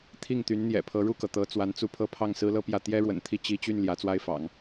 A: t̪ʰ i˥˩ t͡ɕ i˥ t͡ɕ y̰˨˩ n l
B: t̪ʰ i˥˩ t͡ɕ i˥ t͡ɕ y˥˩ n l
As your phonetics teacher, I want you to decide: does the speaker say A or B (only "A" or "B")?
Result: B